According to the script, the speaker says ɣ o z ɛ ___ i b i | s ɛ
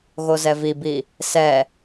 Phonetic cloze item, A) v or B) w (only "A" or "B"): A